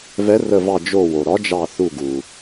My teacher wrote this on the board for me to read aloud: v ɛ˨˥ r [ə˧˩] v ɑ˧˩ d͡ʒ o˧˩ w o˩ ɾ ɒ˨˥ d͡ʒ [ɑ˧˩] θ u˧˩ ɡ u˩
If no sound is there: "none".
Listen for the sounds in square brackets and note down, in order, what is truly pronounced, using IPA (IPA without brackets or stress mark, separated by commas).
ə˧˩, ɑ˧˩